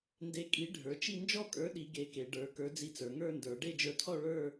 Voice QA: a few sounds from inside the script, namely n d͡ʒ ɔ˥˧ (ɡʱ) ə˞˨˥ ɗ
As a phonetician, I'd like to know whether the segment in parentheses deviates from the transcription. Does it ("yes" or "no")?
yes